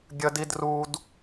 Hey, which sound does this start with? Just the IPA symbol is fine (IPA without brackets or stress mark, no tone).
ɡʲ